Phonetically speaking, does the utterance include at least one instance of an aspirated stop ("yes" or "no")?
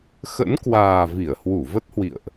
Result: no